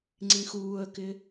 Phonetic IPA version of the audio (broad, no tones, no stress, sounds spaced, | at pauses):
ŋ͡ǀ ĩ x uː ə̯ k ɪ